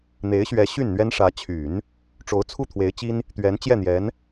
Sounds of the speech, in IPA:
n̪e˧˥ɪ̯ɕɥɛ˧˥ ɕy˥˩nn̪ɥɛ˥nʂä˧˥ t͡ɕʰy˨˩˦n | ʈ͡ʂo˧˥ʊ̯t͡sʰu˥˩t̪ʰwe˧˥ɪ̯t͡ɕi˥n | t̪ɥɛ˧˥n t͡ɕjɛ˥˩n̪jɛ˧˥n

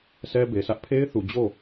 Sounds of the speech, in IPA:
sʰɛ˦be˨sʰä˦ʔ pʰe˦ɪ̯θu˨d͡ʑo˦˨

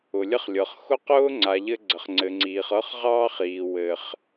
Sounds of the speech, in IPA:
ʊ˨lʲə˦χlʲɤ˨χ xʊ˦qʊː˦ŋ͡ǀa˨ʎɘ˧ ɡ͡ǀə˨χŋ͡ǀɘ˨ŋ͡ǀiː˨χ ɤ˦χʁɑː˦χiː˨ wɘ˨χ

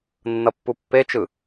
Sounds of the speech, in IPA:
nːʌpːupːet͡ʃɯ

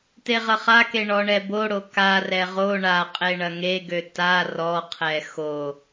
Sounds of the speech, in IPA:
teʁɐχake ɳɔɳɛboɽo karɛ ʁo ɳaqʼe ɳɐŋeɡø ta rɔqʰɛ xo

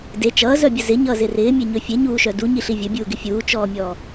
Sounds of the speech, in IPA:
de t͡ʃʌːzœbʲə zɪɲʌːzɪ rɪːmʲeɲɵ fʲeɲuːʃœ duɲiɬi vʲɵbʲuːɡɪ fʲuːt͡ʃɔːmʲɔː

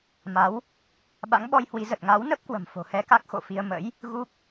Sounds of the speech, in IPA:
ma˨˦w | ɓa̰˧˥ŋɓɔ˧jhwi˨˦ zə˨˩t̚ŋa˨˦wnə˦˥p̚kwə̤˨˩m fo̤˨˩hɛ˧ka˦˥k̚ xo̰˧˨fi˧ə̯ mə̰˧˥j | ɣu˦˥k̚

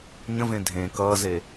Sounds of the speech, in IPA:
ɲə̃vẽ dʱẽ kʌːze

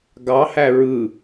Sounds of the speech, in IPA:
ɡɑhæ ɹɯ

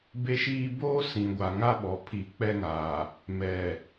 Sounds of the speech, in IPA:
be˦ʃiː˦ boː˦ sĩ˨ɡʷa˨ŋa˦ ɓɔ˨pʰi˨˦ k͡pɛ˦ŋaː˨ | mɛ˨

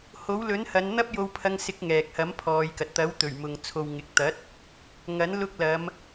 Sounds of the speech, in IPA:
ho˨˥wlɵ˨˥nhɐ˨˧nn̪ɐ˥p̚ jo˧wpʰɐ˧ŋsɪ˨˥k̚ ŋɛː˨k̚hɐ˨˥mpʰɔː˨˧jkɐ˨t̚ t̪ɐ˨˥wt̪ɵ˨˩ɥmʊ˨ŋ t͡sʰo˨wŋɪ˨k̚t̪ɐ˨˥t̚ | ŋɐ˨˥n lʊ˧k̚lɐ˨˧m

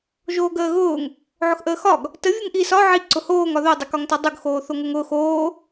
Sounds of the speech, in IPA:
ʒoːɡəːɣʊːŋ | ʕʊxʔəːxɒɡ | tə vʲʊŋʔi sɒ ʕi ǀʊhoːŋ ɒðo dˤʊkɒŋtɒdˤʊɡ xoːθoŋʊŋʊːx oː

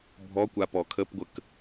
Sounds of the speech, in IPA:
bʱɔkʷa pɔkʰəpɡʷək

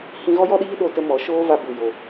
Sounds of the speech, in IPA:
hĩ˧ɣɔ˦jɔ˦ɗiː˦ ɗo˧tə˧ mɔ˨˦ʃoː˦va˧ bu˨jo˨

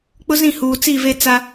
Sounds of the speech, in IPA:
k͡pʊ˦zĩ˦˨huː˨ t͡si˦˨ve˦ t͡sa˦

